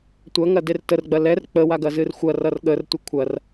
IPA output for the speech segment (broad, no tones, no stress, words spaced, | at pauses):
tʷɐ ŋɐdertər ɡ͡bɐlɛr k͡pə waɡɐzɨrxʷɐ rʌrɠər tʷəkʷʰɐr